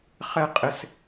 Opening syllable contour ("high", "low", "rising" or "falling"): falling